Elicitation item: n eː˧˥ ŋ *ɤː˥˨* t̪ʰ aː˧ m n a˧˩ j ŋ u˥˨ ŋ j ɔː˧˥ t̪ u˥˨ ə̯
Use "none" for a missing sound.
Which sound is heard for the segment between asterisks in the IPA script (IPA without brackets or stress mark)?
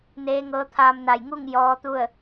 ɤː˧˥